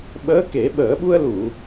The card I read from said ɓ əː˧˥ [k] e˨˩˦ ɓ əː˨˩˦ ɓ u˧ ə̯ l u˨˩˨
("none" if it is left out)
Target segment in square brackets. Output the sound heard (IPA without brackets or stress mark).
k